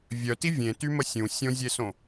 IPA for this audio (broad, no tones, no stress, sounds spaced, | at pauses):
vʲ œ t i vʲ ẽ t y m ə sʲ ũ sʲ õ zʲ e s õ